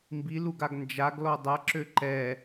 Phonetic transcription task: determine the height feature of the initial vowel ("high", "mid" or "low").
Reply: high